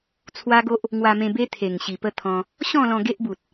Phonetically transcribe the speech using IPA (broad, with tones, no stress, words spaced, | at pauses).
t͡sʰwa˦ ɡo˦ʔ | ŋwa˧mẽ˧be˦ t̪ʰe˨˩ŋɕi˨˩ pə˦t̪ʰɔ̃˧ | ɕɔ̃˥˧lɔ̃˧ ɡe˦ʔbu˨t̚